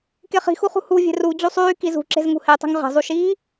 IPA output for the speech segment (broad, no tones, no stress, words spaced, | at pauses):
keχi̤xuχṳ hu vʲe̤ru d͡ʑusˤyː kizṳ ǁe̤zŋṳhetˤṳŋ ʁe̤zˤuʃiː